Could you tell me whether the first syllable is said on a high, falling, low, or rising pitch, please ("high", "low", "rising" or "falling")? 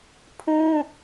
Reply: high